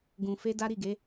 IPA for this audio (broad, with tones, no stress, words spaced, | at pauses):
ɡũ˧ fe˦da˦ ɾi˦˨ ɡe˨˦